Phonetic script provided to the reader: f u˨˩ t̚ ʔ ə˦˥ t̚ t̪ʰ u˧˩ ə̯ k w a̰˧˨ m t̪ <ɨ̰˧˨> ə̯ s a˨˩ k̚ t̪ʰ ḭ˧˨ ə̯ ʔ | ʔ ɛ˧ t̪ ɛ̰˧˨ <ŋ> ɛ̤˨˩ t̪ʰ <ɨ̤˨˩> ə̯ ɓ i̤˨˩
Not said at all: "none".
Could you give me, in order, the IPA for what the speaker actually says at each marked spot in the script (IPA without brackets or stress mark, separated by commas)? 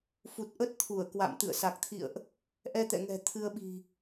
ɨ̰˧˨, ŋ, ɨ˧